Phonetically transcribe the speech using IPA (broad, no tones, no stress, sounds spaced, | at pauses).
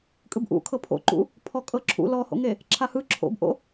kʼ ɯ b ʔ ṵ kʰ ɤ pʰ o̰ ǃ ṵ | pʰ ɔ kʼ ɤ ǁʰ ṵ l ɔ h o̰ ŋ e | ǁʰ a h ɯ ǁʰ o̰ b ʔ o̰